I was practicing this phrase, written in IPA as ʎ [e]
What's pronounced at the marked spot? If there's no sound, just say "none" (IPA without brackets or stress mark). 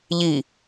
i